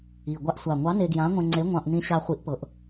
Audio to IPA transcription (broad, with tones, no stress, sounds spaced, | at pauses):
i˨˩ ɡʷ a˧ ʔ sʷ a˨˩ ŋʷ ɑ˨˥ n e˧ ɡ j ã˨˥ ŋʷ ẽ˧ ŋ͡ǀ e˨˥ ŋʷ ɑ̃˧ ʔ n ĩ˧ ɕ a˧ χʷ i˨˥ ʔ p ɤ˩˧ ʔ